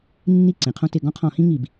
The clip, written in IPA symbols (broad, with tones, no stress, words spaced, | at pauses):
nːi˥˩ǀẽ˩qʰõ˦tɪ˧˩˧ ɡɔ̃˦qʰɔ̃˧˩˧hĩ˦ ŋi˧˩˧b